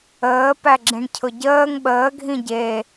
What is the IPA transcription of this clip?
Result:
əː p æ ɡ͡ǁ ĩ ɳ cʰ ʊ ɟ əː ŋ ɓ əː ɡʱ ĩ ɟ e

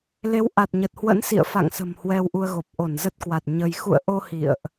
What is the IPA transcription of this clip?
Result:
l e˨˦ w ʔ a˨˩ t̚ ɲ ə˨˩ t̚ h w ə̰˧˥ n s ḭ˧˨ ə̯ f a̰˧˨ ŋ s ə̤˨˩ m h w ɛ˧ w ʔ u˧ ə̯ ɣ o˨˩ p̚ ʔ o˧˩ n z ə˦˥ t̚ k w a˨˩ t̚ ɲ ə˧ j x ṵ˧˨ ə̯ ʔ o˧ h ḭ˧˨ ə̯ ʔ

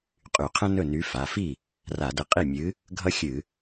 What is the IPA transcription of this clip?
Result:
qʼ y˧˩˧ qʰ ə̃˥ n ɵ˥˩ n y˨˥ f a˩˧˩ f i˥˩ | r a˧˩˧ d ə˨˥ qʼ i˥˩ mʲ ɨ˨˥ | ɡʱ ʌ˥ xʲ ɨ˧˩˧

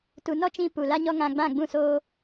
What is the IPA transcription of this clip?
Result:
t u˨ n ɔ˦ t͡ʃ ĩ˧ p u˨ l a˦ ɲ ɔ˦ ŋ ã˧ ɡ͡b ã˦˨ ɡ͡b ũ˦˨ s oː˦

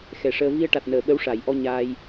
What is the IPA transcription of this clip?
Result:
x ɛ˨˩ ʂ əː˧ v i˧ ə̯ ʈ a˨˩ t̚ n əː˨˩˨ ɓ ə˧˥ w ʂ a˨˩˨ j ʔ ɔ˧ ɲ aː˧ j

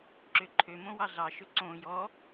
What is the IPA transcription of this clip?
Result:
ǁ ø ǃʰ ø m õ w ɑ ɮ ɑ ʃ ɵ ǀ õ j ɔ

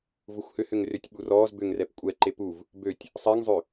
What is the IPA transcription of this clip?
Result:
v ʊ xʷ h ʏ h ʏ ŋ r ʏ tʲ ɓ u r ɔː z b ʏ ŋ r ɛ p kʷʼ ɛ ǃ e p u v | b ø tʲ | sˤ ɛ ŋ zˤ ø

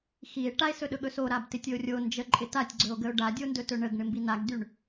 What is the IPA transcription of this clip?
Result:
x i e̯ ʈ a e̯ s ɵ ɗ ɵ ɠ ɵ s o ɾ a b t ɪ tʲ ɵ o̯ rʲ o n d͡ʒ ə ǃʼ ɪ t a tʲ ɡ͡ǀ ɵ o̯ ɡ ə o̯ ɖ a dʲ o n d ɵ t ɵ ɳ ə ɡ ɳ ɪ m b i n a ɡ d y ɳ

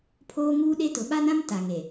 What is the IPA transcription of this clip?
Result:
pʰ oː˦ ŋ uː˦ ɗ e˦ t ʊ˨ ɓ a˦ n ã˦ m t a˨ ŋ e˨

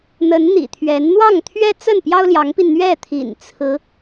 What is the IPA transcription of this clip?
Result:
n̪ ə˧˥ n n̪ ḭ˨˩ t̪ʰ ɥ ɛ˧˥ n n̪ w ɑ˥˩ ŋ t̪ʰ ɥ ɛ˥ t͡s ə˥˩ n p j ɑ˥ ʊ̯ l j ɑ˧˥ ŋ p i˧ n n̪ ɥ ɛ˥˩ t̪ʰ ḭ˨˩ n t͡sʰ ɹ̩˧˥

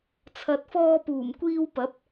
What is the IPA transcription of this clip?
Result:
t͡sʰ ɐ˨ t̚ f ɔː˧ p uː˨˩ m kʷ iː˧ w p ɐ˨˥ p̚

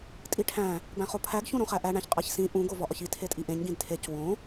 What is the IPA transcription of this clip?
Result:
tʼ i ʈʰ æ̃ | b æ̃ χ o pʰ æ ɡ ç ũ ɾ õ χ æ ʔ æ ɳ æ̃ ç qʼ æ ç s ĩ ʔ ũ ɡ o v ɒ ʔ ɒ ç i tʰ e tʼ i ʔ ẽ ɲ ɡ ĩ d tʰ e c w õ

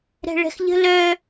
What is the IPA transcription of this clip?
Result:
ɾ ɛ̤ ɭ ɛ̤ x ʎ ə̤ l œ

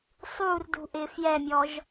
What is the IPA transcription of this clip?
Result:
sˤ u r d ṳ ʔ ɪ f j ɛ mʲ ɔ ʒ

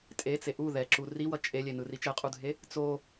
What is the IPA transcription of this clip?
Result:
tʼ e t͡s e ʔ u ð ɛ ǁ u r i w ʌ t͡ʃʼ e lʲ e n ɯ r i t͡ʃ ɛ qʼ u dʱ e | t͡s o

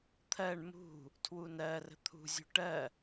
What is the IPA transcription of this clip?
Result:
t̪ʰ ɜ ɳ m ṳ | tʰ w u n ɜ r ə̤ t̪ʰ ṳ zʲ ṳ ʈ ɜ

